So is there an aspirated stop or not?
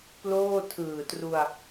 yes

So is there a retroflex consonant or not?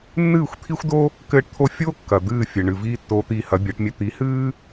yes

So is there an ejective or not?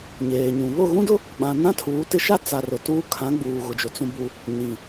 no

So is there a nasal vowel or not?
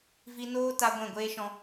yes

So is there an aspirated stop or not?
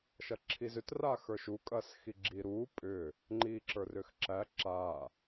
yes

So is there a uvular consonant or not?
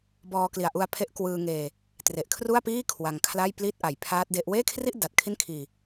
no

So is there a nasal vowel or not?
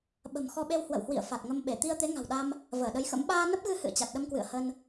no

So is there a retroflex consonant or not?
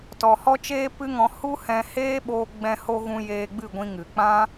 no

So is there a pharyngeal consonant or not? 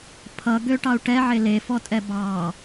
yes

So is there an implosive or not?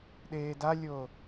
yes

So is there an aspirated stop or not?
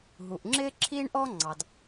yes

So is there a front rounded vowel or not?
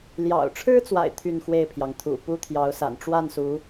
yes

